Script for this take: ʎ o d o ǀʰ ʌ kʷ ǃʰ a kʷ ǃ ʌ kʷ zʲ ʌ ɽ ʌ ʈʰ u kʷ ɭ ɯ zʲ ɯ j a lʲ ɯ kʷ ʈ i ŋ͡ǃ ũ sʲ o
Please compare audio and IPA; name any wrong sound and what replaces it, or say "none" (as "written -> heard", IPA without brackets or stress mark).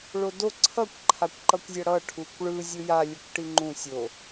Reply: ʎ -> ɭ